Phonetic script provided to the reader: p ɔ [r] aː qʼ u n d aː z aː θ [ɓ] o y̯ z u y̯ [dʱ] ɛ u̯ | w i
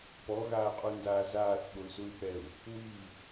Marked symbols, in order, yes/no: no, yes, no

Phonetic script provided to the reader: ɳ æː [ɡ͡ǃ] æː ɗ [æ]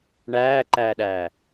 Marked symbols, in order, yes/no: no, no

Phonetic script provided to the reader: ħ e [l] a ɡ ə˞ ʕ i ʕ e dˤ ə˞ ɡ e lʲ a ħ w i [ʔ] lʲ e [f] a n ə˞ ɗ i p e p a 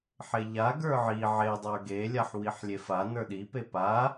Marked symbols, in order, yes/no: no, no, yes

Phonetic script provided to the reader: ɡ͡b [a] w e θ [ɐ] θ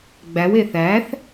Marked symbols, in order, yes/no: no, no

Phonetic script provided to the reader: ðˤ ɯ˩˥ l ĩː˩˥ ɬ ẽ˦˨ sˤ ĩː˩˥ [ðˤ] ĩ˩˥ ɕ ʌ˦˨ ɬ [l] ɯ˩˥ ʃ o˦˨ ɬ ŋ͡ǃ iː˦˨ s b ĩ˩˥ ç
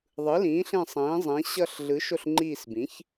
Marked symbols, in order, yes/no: no, no

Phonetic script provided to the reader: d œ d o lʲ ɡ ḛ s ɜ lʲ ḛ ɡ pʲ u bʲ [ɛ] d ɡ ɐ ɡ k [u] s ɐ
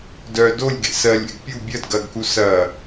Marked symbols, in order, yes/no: no, yes

